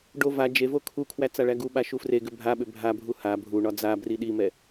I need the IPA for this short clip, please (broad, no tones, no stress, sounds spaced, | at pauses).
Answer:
ɖ o v a d͡ʒ e v o kʰ u kʰ w æ t͡s a ɭ æ ɡ u ɓ a ʃ u f r e ɡ ʏ bʱ a ɓ ʏ bʱ a bʱ u h a bʱ u ɳ ɒ d͡z a b r i ɗ i m ɛ